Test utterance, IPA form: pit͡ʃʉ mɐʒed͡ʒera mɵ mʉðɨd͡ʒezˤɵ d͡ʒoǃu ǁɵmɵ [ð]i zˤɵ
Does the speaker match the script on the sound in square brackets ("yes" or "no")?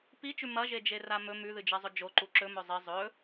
no